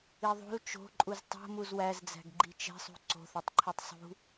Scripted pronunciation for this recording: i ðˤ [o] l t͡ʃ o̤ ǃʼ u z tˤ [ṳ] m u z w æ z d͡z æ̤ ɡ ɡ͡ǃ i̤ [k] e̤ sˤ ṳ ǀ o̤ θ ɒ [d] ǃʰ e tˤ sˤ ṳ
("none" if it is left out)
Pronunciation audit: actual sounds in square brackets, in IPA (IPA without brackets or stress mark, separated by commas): o̤, o̤, t͡ʃ, tˤ